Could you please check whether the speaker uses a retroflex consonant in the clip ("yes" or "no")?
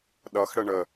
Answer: yes